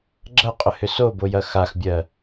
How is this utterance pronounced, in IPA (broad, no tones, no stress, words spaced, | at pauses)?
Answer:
ɡ͡ǁɐqʼʏhʏ sobojɐ xaxbʲɜ